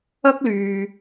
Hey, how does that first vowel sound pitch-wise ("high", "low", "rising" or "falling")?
high